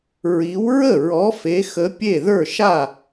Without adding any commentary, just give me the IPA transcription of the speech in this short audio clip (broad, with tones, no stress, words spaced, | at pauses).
ɹi˨˥w ɹə˥˩ɹɔ˨˥ fe˨˥xə˨˥pʲe˥˩ ðə˞˥˩ʃa˥˩